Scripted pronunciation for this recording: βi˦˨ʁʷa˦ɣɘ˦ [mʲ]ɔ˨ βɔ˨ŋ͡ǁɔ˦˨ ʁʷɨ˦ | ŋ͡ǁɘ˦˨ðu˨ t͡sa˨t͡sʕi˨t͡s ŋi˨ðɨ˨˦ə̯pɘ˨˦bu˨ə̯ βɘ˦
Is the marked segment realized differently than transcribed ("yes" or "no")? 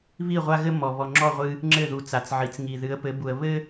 yes